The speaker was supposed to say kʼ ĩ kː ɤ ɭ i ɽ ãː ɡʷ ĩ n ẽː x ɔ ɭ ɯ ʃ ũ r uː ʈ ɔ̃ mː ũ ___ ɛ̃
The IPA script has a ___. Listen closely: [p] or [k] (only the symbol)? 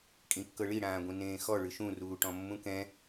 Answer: k